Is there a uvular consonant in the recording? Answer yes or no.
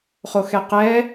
yes